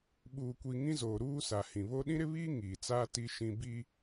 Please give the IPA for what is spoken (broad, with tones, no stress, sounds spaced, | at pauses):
ɓ uː˨ kʷ i˨ ŋ ĩ˦ z oː˨ ɾ uː˦ s a˨ h ĩ˨ β o˦ ɗ ĩ˦ ɾ ɪ˦ β iː˦ ŋ iː˨ t͡s aː˦ t i˦ ʃ ĩ˦ b i˦